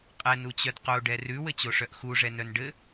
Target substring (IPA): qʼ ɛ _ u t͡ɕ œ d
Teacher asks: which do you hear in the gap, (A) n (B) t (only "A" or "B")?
A